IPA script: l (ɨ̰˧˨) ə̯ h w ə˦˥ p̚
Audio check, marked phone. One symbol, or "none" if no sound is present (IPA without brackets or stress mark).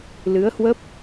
ɨ˨˦